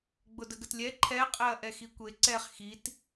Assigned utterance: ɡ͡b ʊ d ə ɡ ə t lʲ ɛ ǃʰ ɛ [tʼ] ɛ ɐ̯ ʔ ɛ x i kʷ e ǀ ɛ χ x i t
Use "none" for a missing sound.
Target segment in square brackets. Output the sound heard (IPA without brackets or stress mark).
qʼ